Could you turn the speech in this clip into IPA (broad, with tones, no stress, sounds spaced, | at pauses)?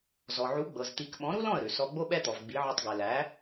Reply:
z ɔ˩ ʕ u˩˥ ɡ͡b ɤ˩ z t̪ i˩˥ k ɓ ɔ̃˩˥ ɾ u˥ l ɔ̃˥˩ ə̯ ɾ ʉ˩ s ɔ˧ ɡ͡b o˥ ɓ ɛ˥ t̪ ɔ˩ v ɡ͡b i˩˥ ʕ ʉ˧ tˤ ɡ ɛ˩ l æ˩˥